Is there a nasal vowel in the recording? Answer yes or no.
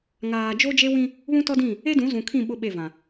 yes